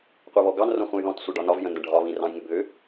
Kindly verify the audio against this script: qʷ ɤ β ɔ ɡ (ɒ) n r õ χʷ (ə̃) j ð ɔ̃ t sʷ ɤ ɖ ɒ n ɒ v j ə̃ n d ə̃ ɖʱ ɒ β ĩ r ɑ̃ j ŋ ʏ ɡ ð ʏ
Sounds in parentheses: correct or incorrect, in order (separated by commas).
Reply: incorrect, correct